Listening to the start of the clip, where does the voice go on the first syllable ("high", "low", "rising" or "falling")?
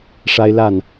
high